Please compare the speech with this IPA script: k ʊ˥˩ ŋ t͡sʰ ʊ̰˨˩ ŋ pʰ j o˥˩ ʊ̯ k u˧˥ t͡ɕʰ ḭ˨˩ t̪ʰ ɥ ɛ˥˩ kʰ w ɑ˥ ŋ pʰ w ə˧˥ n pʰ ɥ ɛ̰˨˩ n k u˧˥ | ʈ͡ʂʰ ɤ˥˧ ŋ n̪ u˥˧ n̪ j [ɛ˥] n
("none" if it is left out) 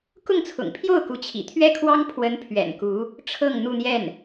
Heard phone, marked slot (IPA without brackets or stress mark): ɛ˥˩